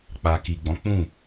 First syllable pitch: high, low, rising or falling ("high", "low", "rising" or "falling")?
low